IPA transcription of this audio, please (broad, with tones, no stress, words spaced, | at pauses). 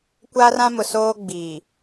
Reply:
kʷa˦rã˦mʊ˨ soː˦ɡ͡biː˨